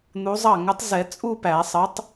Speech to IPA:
n̪u˨˥zˤɑ˥˩ ŋə˨˥tˤzɛ˨˩˦ t͡sʼu˥˧pæ˨˩˦sˤə˨˥tˤ

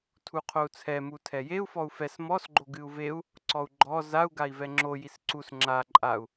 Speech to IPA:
tʰuqʰou̯t͡sʰɛ mutʰɛjeu̯ fɔu̯fɛs mɔs ɡ͡ǃoɡɨu̯veu̯ | ǀɔu̯ɡ͡ǃɔ zau̯ ɡai̯vɛŋ͡ǁo jisǀus ŋ͡ǁa ǃʼau̯

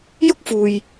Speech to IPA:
jʊ˥k̚fuː˨j

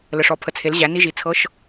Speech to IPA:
lə˨˩ʂɔ˩˥pʰə˩˥t͡sʰe˩˥l ʑæ˩˥ni˧˥˧ʒi˩˥ t͡sʰɤ˧˥˧ʃ

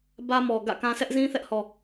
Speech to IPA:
bä˦mɔ˨ ɡä̰˦˨kã˦ sʰɛ˦ʔzĩ˦θɛ˦ʔhɔ˨

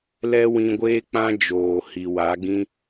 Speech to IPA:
lɛ˦wĩ˧ɡʷeː˦k͡pã˦ d͡ʒoː˨hi˨wa˨˦ɡĩ˦

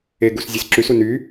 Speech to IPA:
eɡus zʲesǁysu ny

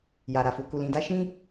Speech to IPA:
ja˨ɾa˨fu˨ ku˨lĩ˨da˧ ʃĩ˦

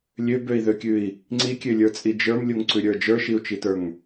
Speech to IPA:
lʲøbøi̯ðøkʲʉi̯ | ŋ͡ǀikʲølʲə˞t͡sʼi d͡ʒə˞mlʲuŋǀʉɾʲə˞ d͡ʒə˞ʃiu̯t͡ʃitə˞ŋ

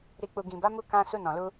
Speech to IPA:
ɾi˨k͡pu˨ ɡĩ˨ba˨˦mu˧ kã˧ su˧nɔ̃˨lu˧

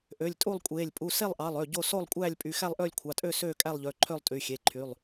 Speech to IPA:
ʔø˩˧˩lʲtʼu˥˨lˠkʷʼeː˩˧˩lʲ pʼu˩˧˩se˥˨lˠʔɑ˩˧˩lˠ ø˩˧˩ ɟo˥˨ so˥˨lˠkʷʼæː˥˨lʲpʼy˩˧˩ xæ˥˨lˠʔøː˥˨lʲkʷʰɑ˩˧˩tʼø˥˨ søː˥˨kʼæ˥˨lˠʎø˩˧˩ ǃʰø˥˨lˠtʼy˩˧˩xʲe˩˧˩ǃʰy˩˧˩lˠ

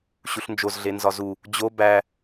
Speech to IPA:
ɕuɬnd͡ʒozɮe nzɒzu | d͡ʑo bæ

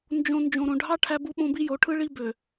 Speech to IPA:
nd͡ʒõ˨ nd͡ʒõ˨ɾõ˨ɖʱɑ˦ ʈʰæ˦bu˦ɓõ˦ bi˦jo˨˦ ʈʰɯ˦ɭi˦bø˨

